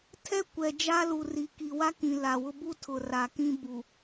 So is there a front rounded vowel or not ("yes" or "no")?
no